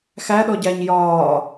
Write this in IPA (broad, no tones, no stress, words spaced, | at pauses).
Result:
xæɗɔɟæɲ jɒː